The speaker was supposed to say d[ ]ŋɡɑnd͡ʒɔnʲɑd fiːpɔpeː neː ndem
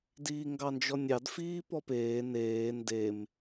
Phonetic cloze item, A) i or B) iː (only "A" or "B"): B